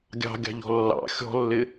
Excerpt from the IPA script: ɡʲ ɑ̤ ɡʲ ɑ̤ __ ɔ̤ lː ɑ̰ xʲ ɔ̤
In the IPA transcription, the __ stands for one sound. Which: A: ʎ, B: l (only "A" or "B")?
A